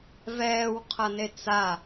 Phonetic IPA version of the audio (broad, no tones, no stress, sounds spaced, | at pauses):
v ɛː w qʰ ʌ n e t͡s a